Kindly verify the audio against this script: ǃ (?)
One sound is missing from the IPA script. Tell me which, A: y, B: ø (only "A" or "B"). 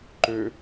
B